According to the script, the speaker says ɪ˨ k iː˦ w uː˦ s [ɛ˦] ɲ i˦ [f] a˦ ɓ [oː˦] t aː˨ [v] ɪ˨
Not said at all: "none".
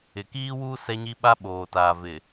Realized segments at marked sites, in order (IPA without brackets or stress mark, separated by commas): ɛ˦, ɓ, oː˨, v